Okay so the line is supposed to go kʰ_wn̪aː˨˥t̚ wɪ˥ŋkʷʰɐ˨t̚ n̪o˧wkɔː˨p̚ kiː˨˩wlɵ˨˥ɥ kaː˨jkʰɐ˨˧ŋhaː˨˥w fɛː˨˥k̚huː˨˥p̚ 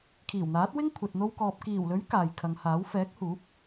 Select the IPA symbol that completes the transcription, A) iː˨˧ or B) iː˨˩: B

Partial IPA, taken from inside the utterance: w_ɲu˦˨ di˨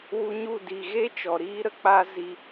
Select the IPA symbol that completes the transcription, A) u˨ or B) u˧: B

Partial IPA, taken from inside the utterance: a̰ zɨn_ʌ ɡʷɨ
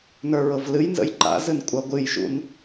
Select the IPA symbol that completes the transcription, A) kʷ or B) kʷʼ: B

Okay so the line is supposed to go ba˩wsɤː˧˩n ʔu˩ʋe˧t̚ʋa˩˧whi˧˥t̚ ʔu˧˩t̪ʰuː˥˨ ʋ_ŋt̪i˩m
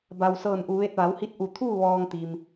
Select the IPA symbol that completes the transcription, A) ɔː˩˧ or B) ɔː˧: B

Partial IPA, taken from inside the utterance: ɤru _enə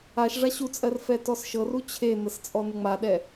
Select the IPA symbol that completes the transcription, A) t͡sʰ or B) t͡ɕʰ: B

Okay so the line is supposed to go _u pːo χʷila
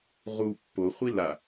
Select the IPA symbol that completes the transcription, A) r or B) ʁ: B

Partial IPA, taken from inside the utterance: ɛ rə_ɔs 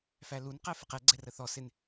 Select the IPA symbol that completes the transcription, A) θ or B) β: A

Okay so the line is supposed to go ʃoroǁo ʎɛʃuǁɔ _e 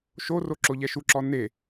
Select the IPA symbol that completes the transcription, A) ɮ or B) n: B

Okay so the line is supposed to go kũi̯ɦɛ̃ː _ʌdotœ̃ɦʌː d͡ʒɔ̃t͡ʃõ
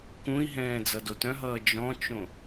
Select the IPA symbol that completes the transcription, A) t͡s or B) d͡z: B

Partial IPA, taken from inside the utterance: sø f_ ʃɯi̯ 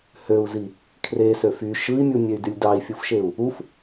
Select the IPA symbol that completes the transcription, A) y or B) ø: A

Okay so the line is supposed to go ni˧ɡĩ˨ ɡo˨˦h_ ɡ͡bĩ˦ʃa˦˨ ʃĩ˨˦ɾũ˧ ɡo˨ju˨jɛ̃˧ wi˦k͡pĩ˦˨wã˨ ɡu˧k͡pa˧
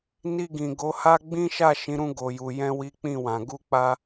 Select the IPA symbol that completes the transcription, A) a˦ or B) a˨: A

